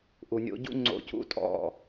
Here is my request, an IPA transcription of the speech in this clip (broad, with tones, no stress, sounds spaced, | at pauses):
ʔ u˨ nʲ o̰˧ ɟ ṵ˦ ŋ͡ǀ o̰˧ c ṵ˦ tʼ ɔ̰˦˨